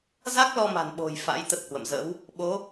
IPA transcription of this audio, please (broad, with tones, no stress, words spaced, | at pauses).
za˦˥k̚lɔ˧ma̤˨˩nɓo̤˨˩j fa̰˧˥j t̪ə˦˥t̚hwə̰˧˨mzə̰˧˥w | ɓo˨˦